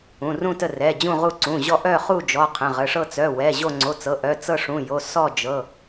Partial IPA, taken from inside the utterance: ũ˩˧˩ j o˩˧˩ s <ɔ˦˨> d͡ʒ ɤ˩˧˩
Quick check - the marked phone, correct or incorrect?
correct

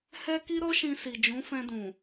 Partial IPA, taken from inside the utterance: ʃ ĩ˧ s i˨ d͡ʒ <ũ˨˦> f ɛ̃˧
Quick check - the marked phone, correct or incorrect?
correct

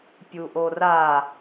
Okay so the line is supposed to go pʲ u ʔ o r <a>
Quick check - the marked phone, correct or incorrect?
correct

